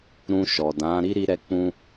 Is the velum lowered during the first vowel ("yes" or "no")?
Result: yes